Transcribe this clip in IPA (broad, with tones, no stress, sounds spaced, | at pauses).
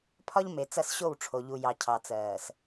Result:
pʰ ɒ˦ ʎ m e˨ t͡s ɐ˦˨ s ɕ o˦˨ w ʈ͡ʂʰ o˨ ʎ u˨ j ɑ˨ cʰ ɑ˨ t͡s ɜː˨ s